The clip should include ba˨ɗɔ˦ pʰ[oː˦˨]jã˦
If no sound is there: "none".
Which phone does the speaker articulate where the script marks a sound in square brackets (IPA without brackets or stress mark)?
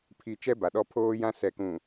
oː˦